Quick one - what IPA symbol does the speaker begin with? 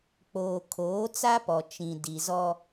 k͡p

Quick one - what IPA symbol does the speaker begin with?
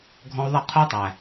ɡʱ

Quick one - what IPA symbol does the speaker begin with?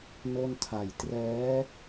n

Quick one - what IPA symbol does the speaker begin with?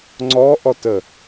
ŋ͡ǀ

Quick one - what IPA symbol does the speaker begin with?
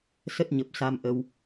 s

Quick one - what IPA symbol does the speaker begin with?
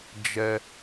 d͡ʒ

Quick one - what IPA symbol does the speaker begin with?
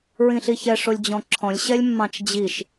ɹ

